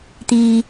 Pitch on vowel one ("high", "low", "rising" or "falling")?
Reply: low